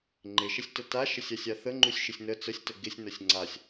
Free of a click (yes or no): no